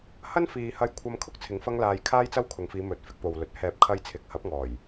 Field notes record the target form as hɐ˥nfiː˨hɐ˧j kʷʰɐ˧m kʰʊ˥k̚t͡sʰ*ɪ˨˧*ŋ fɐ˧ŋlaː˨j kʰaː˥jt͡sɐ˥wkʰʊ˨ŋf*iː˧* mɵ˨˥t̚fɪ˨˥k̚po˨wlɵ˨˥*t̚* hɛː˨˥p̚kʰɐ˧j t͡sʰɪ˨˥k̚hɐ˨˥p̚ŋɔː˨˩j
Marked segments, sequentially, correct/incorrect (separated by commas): incorrect, incorrect, correct